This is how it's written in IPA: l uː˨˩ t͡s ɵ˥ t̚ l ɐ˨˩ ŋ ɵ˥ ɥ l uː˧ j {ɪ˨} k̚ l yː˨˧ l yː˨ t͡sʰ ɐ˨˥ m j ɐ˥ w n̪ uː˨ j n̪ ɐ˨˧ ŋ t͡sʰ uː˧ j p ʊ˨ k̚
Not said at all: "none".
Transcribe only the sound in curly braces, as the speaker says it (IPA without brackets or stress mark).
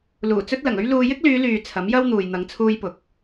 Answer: ɪ˥